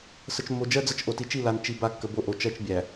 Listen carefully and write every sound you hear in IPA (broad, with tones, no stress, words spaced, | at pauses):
sə˨t͡ʃmːo˨d͡ʒɜ˦d͡zə˦˨t͡ʃ ʔo˨ti˨t͡ʃi˦˨ la˨nt͡ʃi˨ ba˦˨kːə˨bo˦ʔo˨ t͡ʃɜ˦t͡ʃ bʲæ˨